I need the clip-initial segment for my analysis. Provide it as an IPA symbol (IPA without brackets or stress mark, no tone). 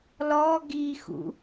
l